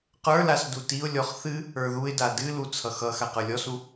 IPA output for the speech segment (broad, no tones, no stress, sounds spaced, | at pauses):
q ə˞ l a s d u t i ʊ̯ lʲ ɔ χ θ ɨ | ə˞ ð u ɪ̯ d a d ɨ l u t͡sʰ ʌ x ʌ x a q ə˞ lʲ ɔ s u